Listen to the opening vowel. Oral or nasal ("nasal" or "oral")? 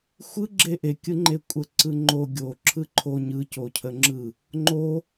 oral